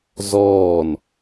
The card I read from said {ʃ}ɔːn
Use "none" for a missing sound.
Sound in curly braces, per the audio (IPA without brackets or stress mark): z